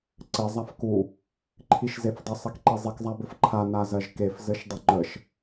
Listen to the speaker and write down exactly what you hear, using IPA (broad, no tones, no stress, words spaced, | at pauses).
ǀɘ zˤafku | ǃʰiʃzefdˤə sˤikǃizˤik zˤabɘfǃʰa nazɜʒkef zɘʃdˤʏŋ͡ǃəʃ